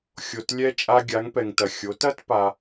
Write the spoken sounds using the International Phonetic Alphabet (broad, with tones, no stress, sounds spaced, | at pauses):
xʲ o˩ t lʲ ɛ˧ t͡ʃʼ a˧ ɡʲ a˩˧ ŋ p ɛ˩ ŋ t ɐ˩ xʲ o˩˧ t ɐ˥ t p a˧